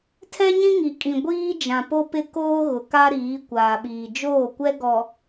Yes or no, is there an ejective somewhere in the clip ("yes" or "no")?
yes